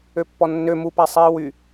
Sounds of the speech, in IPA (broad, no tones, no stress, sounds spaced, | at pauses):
ø pː ɔ nː ø m u p æ sˤ iː w y